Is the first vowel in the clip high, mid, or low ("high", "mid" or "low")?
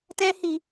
mid